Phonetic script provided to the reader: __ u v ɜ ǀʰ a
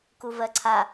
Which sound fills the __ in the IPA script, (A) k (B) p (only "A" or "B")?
A